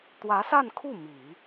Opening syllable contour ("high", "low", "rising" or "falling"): rising